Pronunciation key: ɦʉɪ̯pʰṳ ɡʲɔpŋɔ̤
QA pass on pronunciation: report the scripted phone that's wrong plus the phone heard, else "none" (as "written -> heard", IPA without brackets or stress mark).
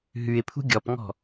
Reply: none